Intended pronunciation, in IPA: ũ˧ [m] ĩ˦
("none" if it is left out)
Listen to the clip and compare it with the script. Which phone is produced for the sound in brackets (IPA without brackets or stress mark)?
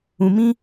m